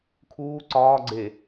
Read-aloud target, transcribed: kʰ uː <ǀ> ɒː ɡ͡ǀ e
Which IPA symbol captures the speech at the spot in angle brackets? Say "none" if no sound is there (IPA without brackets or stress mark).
ǀ